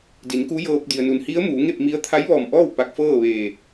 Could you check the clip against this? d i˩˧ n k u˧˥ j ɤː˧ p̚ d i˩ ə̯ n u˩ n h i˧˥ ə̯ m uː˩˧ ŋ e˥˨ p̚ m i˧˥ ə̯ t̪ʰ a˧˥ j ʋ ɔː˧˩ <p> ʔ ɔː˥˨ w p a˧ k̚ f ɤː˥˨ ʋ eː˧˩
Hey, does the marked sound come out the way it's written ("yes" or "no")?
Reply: no